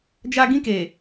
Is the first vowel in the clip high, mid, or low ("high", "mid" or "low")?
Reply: low